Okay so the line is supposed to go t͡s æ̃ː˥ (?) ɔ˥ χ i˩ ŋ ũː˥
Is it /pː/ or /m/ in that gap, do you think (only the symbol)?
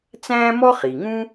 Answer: m